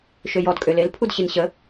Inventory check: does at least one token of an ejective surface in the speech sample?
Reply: yes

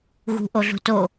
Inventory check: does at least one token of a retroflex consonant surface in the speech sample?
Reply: no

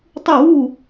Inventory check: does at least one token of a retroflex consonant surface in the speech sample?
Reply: no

